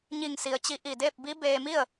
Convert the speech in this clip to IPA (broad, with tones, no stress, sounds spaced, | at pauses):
ɲ i˧˩ ŋ s i˩ ə̯ t͡ɕ i˧ ʔ i˧˩ d eː˥˨ p̚ b i˧˥ b eː˧ m i˥˨ ə̯